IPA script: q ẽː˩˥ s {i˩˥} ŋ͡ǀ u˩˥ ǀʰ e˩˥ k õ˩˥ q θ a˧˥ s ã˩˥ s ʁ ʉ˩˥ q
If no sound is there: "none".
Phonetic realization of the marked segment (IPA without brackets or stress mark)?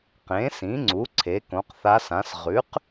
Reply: ĩ˩˥